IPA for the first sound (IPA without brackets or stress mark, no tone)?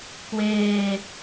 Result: k